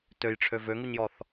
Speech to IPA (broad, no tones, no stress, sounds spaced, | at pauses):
t ø j ʈ͡ʂʰ ø v ø ŋ u ɲ j ɔ θ